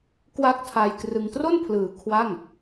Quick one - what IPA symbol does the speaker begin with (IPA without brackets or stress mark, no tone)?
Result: k